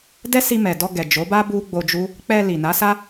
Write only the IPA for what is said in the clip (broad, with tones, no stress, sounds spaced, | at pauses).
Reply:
d ɛ˦ s i˧ m ɛ˨ d ɔ˧ ɡ ɛ˨ d͡ʒ o˨˦ b a˦ b u˦ ɡ͡b o˧ d͡ʒ u˦ | k͡p ɛ˧ l i˨ n a˨˦ s a˦